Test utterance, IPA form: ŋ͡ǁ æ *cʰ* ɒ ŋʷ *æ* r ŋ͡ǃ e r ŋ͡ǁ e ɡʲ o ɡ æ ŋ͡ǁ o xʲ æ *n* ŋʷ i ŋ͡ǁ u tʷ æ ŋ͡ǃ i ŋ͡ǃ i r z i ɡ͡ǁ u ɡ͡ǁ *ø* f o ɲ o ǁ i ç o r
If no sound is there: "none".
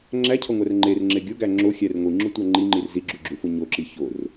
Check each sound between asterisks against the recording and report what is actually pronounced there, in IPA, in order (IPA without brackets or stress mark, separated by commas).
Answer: cʰ, æ, r, u